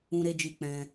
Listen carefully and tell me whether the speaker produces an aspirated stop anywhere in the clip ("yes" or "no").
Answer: no